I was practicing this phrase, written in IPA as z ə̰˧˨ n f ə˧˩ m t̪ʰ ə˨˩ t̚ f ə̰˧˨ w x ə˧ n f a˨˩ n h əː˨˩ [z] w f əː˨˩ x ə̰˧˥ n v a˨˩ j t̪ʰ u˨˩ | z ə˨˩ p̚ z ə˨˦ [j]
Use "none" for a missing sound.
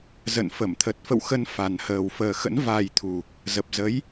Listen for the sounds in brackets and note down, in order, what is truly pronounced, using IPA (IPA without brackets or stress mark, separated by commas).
none, j